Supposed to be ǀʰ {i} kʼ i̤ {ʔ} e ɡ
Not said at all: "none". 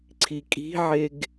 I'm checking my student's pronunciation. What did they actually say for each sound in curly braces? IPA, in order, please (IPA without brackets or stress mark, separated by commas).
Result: i, ʕ